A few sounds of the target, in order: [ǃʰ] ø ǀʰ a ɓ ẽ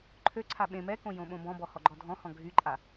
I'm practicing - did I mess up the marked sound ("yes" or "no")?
no